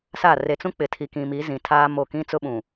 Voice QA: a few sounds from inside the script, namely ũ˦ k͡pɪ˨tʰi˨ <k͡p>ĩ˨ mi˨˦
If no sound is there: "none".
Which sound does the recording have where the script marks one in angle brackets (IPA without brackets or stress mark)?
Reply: k